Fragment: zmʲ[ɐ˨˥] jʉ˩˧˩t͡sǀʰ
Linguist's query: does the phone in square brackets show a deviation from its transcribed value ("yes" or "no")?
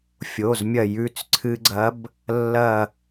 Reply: yes